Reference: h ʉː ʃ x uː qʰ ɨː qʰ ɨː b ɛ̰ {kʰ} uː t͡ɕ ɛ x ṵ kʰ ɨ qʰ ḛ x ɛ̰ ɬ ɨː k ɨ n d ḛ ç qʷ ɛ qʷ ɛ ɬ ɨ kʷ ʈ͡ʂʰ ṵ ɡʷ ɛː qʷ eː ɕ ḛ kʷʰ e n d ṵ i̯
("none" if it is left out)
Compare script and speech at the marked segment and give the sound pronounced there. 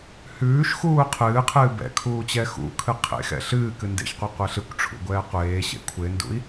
kʰ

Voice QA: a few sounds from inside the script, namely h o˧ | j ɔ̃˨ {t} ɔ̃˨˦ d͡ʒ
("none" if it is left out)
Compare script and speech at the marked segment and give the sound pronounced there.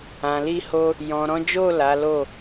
ɾ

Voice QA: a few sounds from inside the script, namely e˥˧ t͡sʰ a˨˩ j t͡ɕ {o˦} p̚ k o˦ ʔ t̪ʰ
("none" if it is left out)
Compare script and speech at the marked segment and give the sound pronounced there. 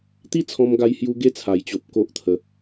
o˨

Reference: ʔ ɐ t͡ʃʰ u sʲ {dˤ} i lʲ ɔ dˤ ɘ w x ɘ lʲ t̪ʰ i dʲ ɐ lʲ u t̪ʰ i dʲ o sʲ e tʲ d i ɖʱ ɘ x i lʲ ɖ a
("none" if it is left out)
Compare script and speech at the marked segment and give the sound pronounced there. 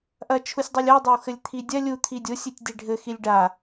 dˤ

